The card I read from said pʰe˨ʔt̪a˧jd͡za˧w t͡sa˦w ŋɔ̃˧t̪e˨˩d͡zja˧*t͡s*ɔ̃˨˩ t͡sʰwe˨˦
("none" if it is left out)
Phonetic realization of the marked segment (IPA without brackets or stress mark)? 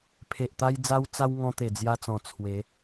t͡s